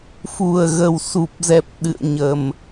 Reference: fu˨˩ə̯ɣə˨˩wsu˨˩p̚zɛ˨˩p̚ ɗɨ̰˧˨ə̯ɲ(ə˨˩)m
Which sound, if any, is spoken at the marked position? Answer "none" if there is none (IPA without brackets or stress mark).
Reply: ə˨˩